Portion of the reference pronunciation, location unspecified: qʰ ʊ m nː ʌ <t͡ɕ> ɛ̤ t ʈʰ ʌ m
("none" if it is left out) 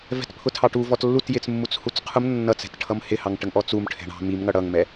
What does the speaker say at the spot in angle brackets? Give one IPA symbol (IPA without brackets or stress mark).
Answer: t͡s